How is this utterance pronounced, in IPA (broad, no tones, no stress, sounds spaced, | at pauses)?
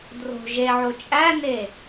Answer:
d r o̤ ʒ e ʕ o t͡ʃʼ æ n e